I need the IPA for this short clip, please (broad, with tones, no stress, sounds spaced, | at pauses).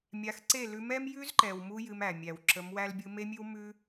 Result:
mʲ a˨˦ x ǀ e˦˨ l ʉ˧ m ɛ˦ m j ʉ˦ z ǃ ɛ˨ w m u˧ j ɨ˧ m æ˨ mʲ æ˨ w ǁ ə˨˦ m w æ˦ l bʲ ɯ˦ m e˦ mʲ ʉ˦ w m ʉ˦